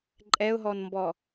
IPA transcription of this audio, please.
ǃʼ ɛ ʊ̯ ɦ ɔ n m b ɔ

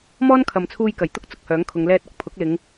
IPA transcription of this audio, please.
m ɔː˥ n kʰ ɐ˨ m t͡sʰ uː˧ j k ɐ˨˩ j t̪ ʊ˥ k̚ t͡s ʊ˨ k̚ h œː˨˥ ŋ kʰ ʊ˨˧ ŋ l ɛː˧ t̚ ɐ˨ k̚ pʰ ʊ˨˥ k̚ l ɪ˨˧ ŋ

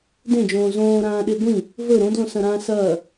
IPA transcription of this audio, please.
d ẽ d͡ʒ õː z õː ɾ ãː ɗ e ɡʷ ĩ | v ɵ ɾ õ d l õ s ɐ̃ ɾ ãː s ɐː

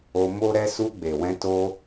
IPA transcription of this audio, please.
o˧ m o˦ ɾ ɛ˦ s u˧ ɡ͡b e˨ w ɛ̃˧ t o˧

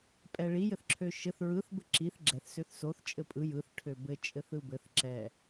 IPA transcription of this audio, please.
pʼ ɛ ɭ i j ɘ θ ǁʰ ø ʃ ɘ θ ɹ ɯ θ b ɘ ǁ i θ ɡ͡ǁ ɛ θ s ø θ s o θ t͡ʃʼ ɘ pʼ ɯ j ɯ θ ʈʰ ø b ɘ t͡ʃʼ ɘ θ ɯ b ɘ θ ǁ ɛ

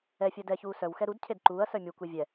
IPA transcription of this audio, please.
ɛ fʲ œ d ɛ ç uː s œ w x ɛ ɾ u d cʰ e d ǃ uː ɐ̯ s œ mʲ u kʷ i vʲ ɛ

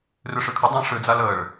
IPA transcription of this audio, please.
r ʏ ʂ ʏ kʰ ə dˤ ɛ̃ ʂ ʏ d͡z a l ə ɭ

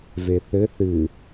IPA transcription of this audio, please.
v e θ ɘ θ ɨ

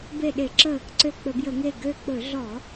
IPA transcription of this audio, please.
b e˧˩ ɗ e˧˩˧ ǁ ə˧˩ | ǀ ø˧˩ k͡p ɵ˧˩˧ b j ə˧˩˧ ŋ e˧˩ ɡ ø˧˩ k͡p ɵ˧˩˧ ɮ ɔ˧˩˧

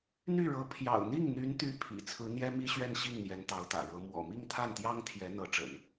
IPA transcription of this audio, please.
n̪ y˥˩ ɻ ɤ˧˥ pʰ j ɑ̰˨˩ ʊ̯ n̪ i˥˩ ŋ n̪ y˧˥ n t̪ y˧˥ pʰ ḭ˨˩ t͡sʰ ɹ̩˧˥ n̪ j ɛ˥ m i˥ ɕ ɥ ɛ˥˧ n ɕ i˥˩ ŋ n̪ j ɛ˧˥ n t̪ ɑ˧˥ ʊ̯ t̪ ä̰˨˩ ɻ ɤ˧˥ m w ɔ̰˨˩ m i˥˧ ŋ t̪ʰ a˥˩ n t̪ j ɑ˥ ŋ t̪ʰ j ɛ˧˥ n̪ ɤ˧˥ ʈ͡ʂ ə̰˨˩˦ n

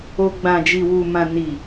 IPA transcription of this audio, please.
o˧ ɡ͡b ã˨ d͡ʒ i˨ w u˨ m ã˨ n i˨

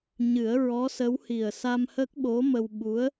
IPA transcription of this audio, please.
ɲ ɨ˨˩˦ ə̯ ɹ ɔ˧˥ s ə˧˥ w h i˨˩ ə̯ s a˧ m h ə˦˥ k̚ ɓ o˧˥ m ə˧ w ɓ u˧˥ ə̯

